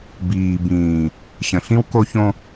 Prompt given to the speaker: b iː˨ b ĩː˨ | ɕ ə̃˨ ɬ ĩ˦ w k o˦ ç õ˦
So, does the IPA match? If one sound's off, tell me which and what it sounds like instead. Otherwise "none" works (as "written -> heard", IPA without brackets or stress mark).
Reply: none